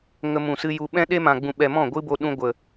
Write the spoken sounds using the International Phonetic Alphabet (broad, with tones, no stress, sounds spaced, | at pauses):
ŋ ə˧ m ũ˨ s ɨ˧ j u˧ ɓ ɛ̃˦ ɗ e˦ m ã˨ ɡ͡b ũ˨ ɓ ɛ˨ m ɔ̃˦˨ ɡʷ ɨ˦ b o˧ ɗ ũ˧ ɡʷ ə˨